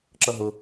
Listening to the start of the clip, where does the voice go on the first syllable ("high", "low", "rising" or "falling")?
high